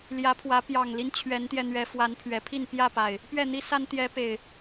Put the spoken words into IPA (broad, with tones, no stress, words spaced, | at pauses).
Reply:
ljä˨˦pʰwä˨˦ pjɑ˨˩ŋli˦n t͡ɕʰɥɛ˨˦nt̪jɛ˧n̪ɥɛ˨˦ fwa˨˦npʰɥɛ˨˩pʰi˥˨n pjä˥˨pa˨˩ɪ̯ | pɥɛ˥˨n̪i˦sa˦n t̪jɛ˨˦pe˨˩ɪ̯